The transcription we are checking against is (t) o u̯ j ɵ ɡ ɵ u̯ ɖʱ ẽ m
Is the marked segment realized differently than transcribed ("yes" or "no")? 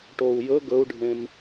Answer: yes